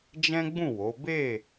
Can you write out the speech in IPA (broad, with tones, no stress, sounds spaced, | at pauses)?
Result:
d͡ʒ ɛ̃˦ ɡ͡b ũ˦˨ w o˨˦ b e˦˨